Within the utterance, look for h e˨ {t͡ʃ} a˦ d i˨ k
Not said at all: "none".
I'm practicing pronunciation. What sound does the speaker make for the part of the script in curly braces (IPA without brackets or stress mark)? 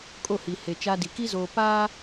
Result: t͡ʃ